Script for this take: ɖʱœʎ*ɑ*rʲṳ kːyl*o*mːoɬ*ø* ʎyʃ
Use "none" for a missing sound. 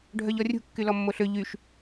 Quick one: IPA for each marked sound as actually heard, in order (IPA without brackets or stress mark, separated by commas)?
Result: ɔ, ɔ, ø